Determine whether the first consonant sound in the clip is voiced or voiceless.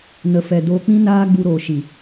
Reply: voiced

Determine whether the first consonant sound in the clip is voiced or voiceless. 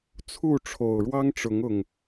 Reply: voiceless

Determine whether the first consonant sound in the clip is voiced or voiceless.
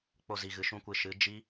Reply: voiceless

